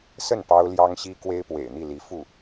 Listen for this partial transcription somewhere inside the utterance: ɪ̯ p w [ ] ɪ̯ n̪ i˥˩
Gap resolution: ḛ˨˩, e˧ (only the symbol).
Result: ḛ˨˩